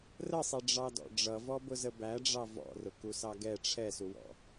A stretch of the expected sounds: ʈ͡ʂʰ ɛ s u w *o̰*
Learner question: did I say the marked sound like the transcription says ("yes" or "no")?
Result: no